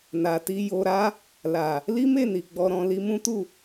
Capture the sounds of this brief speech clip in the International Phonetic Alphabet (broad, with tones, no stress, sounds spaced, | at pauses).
n a˨ t i˧ j o˧ ɾ a˦ | l a˨ | l i˦ m e˦˨ n i˨ ɡ͡b ɔ˧ ɾ ɔ̃˧ l i˧ m ũ˦ t u˦˨